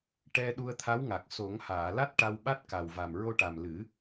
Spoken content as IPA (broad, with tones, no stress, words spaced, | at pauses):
ʈɛ˧ ɗu˧ə̯t̪ʰa˧˥wŋa˨˩k̚ so˨˩˦ŋhaː˨˩˨la˦˥t̚ ʈa˧wɓa˦˥t̚ ka˨˩wva˨˩m ɹo˧ʈa˨˩mlɨ˨˩˦